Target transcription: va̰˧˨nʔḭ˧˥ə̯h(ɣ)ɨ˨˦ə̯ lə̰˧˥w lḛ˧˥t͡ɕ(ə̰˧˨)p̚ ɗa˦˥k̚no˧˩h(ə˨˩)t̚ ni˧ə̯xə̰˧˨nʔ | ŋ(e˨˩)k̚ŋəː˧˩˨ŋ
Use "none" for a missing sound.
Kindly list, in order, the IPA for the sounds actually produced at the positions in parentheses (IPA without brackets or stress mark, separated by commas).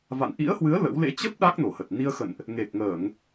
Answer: w, ə˦˥, ə˨˩, e˨˩